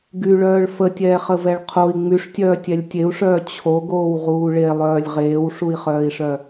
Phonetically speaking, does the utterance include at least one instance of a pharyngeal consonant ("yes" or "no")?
no